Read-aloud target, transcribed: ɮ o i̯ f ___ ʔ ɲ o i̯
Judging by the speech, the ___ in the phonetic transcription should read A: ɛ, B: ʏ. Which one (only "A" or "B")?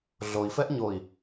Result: A